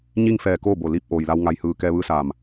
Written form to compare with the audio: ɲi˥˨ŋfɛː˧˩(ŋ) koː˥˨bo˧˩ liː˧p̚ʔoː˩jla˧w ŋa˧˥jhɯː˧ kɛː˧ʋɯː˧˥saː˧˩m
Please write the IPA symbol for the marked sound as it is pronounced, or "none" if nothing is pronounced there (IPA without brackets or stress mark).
none